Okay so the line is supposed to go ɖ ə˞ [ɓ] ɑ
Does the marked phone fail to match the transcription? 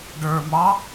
yes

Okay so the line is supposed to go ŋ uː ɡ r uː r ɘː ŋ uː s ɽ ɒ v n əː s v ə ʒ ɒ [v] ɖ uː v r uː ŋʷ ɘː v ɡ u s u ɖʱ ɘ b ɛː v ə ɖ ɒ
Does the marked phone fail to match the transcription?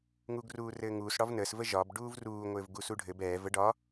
yes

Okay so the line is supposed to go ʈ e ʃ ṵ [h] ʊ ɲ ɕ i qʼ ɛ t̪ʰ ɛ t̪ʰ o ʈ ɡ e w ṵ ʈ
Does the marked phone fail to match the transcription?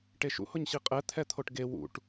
no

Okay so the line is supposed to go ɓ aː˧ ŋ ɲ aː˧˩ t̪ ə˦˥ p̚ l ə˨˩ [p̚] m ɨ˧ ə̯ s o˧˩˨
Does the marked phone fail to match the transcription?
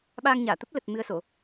yes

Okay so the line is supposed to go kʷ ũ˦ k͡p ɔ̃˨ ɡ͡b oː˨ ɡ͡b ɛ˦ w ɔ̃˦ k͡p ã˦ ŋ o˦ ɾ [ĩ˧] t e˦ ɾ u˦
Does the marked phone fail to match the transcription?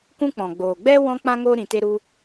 no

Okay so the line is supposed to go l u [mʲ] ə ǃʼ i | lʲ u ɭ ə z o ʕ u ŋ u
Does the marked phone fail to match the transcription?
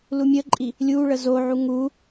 no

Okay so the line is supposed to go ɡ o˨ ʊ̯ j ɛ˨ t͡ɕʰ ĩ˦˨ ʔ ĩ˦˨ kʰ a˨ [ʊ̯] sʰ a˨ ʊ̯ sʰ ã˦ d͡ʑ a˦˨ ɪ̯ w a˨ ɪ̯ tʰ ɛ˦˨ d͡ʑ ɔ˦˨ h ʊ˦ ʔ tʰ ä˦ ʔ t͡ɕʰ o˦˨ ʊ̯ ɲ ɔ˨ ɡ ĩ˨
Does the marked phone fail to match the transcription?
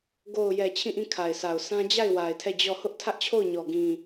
yes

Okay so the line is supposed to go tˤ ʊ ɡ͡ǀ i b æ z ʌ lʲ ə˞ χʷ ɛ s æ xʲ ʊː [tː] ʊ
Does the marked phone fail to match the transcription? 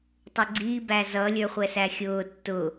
no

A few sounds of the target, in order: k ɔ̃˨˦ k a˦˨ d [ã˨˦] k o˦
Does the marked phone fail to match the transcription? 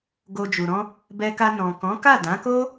no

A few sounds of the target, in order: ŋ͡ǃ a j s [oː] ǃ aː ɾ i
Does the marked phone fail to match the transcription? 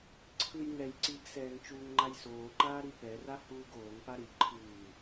no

